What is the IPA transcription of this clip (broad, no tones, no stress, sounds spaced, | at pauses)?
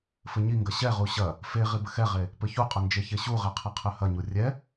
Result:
f ɘ ɲ i ŋ ɡ ɐ ɕ ɛ ʁ u ɕ ɐ | f e ʁ i b ɘ x ɛ ʁ e | p ɘ ç u qʼ ɐ n d͡ʒ e ç e ɕ u ʁ ɛ qʰ ɛ qʰ ɘ h ɐ ɲ u rʲ ɛ